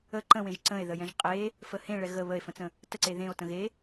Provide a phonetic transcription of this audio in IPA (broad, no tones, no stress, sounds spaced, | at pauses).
ə ǃ ə̃ w ẽ ʒ ǀ ə̃ e̯ ð ə j ɛ̃ ʒ qʼ e | f ə h ẽ ɭ ɛ ɣ ə β ə e̯ f ə̃ t͡s ə̃ | t ə ǀ e ð ẽ o̯ t ə̃ ɣ e